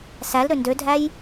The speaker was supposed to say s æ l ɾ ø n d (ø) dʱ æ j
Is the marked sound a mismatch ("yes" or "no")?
no